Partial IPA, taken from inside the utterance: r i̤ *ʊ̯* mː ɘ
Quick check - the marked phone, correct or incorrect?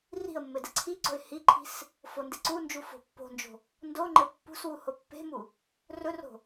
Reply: incorrect